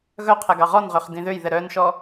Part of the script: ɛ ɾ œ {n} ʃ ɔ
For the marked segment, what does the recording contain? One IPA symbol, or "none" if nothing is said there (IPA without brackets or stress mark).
n